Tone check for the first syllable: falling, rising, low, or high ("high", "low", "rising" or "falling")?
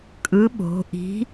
rising